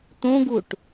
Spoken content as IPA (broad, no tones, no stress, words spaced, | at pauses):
t̪õɡuʈ